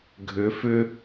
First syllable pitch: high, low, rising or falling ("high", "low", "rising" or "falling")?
rising